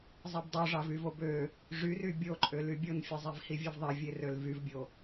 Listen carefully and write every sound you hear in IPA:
zˤ e b dˤ o ʐ ɑ v y v o b ø | ʐ y r y bʲ o ǃʼ ø l y bʲ o n fʲ e zˤ i v h i vʲ ø v ðˤ e vʲ e r ø l v y v bʲ o

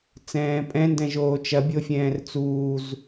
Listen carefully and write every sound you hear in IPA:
t͡s ɛ̃ː pʼ ɛ̃ n d ɛ̃ ʒ oː t͡ʃ ɐ bʲ o fʲ ɛ̃ː r t͡s uː z

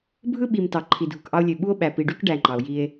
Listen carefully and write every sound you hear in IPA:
bʱ ɯ˦ ɓ i˨ m t ɑ˨ ǃʰ i˨ dʱ u˨ k ʔ ɑ˦ o̯ lʲ ø˨ ɓ u˦ o̯ ɓ æ˨ p i˨ ɖ y˦ k ɖ æ˨ ŋ͡ǃ ɑ˨ o̯ j i˦ e̯

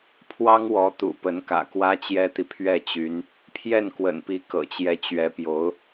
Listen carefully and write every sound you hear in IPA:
pʰ w ɑ˥ ŋ w ɔ˧˥ t̪ ṵ˨˩ p ə˧˥ n k ä̰˨˩ k w ä˥ t͡ɕ j ɛ˥ t̪ i˨ pʰ ɥ ɛ˥˩ t͡ɕ y˧˥ n | pʰ j ɛ˥˩ n k w ə̰˨˩ n p i˧˥ k ɤ̰˨˩ t͡ɕ j ɛ˧˥ t͡ɕ ɥ ɛ˧˥ p j o˧˥ ʊ̯

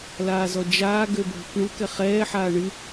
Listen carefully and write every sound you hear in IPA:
l aː z ɔ d͡ʒ aː ɡ ø bʱ ʏ k ɳ u k ɛ χ ɛː ħ aː ɳ ɨ

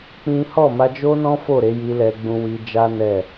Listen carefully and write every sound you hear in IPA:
k͡p ĩ˦ h ɔ˦˨ m a˧ d͡ʒ o˦ n ɔ̃˦ f o˦˨ ɾ e˨˦ j i˧ l ɛ˧ ɡ͡b ũ˧ w i˧ d͡ʒ a˦ n ɛ˦˨

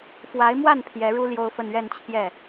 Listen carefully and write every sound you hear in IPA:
f w a˧˥ ɪ̯ m w a˥˩ n pʰ j ɛ˧˥ ɻ u˥ l j o˥ ʊ̯ f ə˥˧ n ɥ ɛ˥˧ n t͡ɕʰ j ɛ˥˩

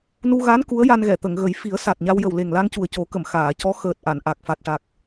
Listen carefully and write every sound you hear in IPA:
n u˧ ɣ a˧˥ n k u˧˥ ə̯ j a˧ n ɣ ɛ˨˩˨ t̪ ə˨˩˨ ŋ ɣ ə˨˩˦ j f i˨˩˦ ə̯ s a˨˩ t̚ ɲ a˧ w j ə˨˩ w l e˨˩ ŋ l a˧ ŋ c u˨˩ ə̯ c o˨˩˦ k ə˨˩˨ m x aː˨˩˨ c ɔ˧˥ x əː˨˩ t̚ ʔ a˨˩˨ n ʔ a˨˩ k̚ f a˨˩ t̚ ʈ a˨˩ k̚

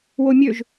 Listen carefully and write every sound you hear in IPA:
w o mʲ ø ʒ

